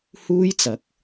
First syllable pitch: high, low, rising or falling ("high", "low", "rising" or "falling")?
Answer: high